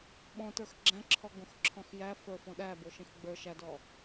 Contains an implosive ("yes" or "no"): yes